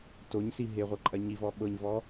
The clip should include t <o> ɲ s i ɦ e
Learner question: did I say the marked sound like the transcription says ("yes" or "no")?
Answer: yes